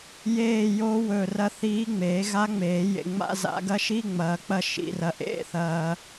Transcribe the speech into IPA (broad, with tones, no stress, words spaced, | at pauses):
jeː˦˨jo˧˥ wɵ˦˨ rɐ˦˨θiː˧˥ ŋ͡meː˨˩˦ɣa˧˥ŋ͡meː˨˩˦jḛ˨ ŋ͡ma̰˧˥˧za̰˨˩˦ ɡɐ˧˥ʃi˧˥˧ ŋ͡mɐː˨˩˦k͡pɐ˦˨ ʃḭ˨rɐ˨ ʔḛ˧˥˧θɐː˨